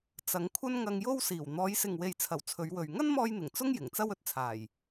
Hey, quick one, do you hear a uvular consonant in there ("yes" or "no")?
no